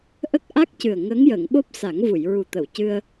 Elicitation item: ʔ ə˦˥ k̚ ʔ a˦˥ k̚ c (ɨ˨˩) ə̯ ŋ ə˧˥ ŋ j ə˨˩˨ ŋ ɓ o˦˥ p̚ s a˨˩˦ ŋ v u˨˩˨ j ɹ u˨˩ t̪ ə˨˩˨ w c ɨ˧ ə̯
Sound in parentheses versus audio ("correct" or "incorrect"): correct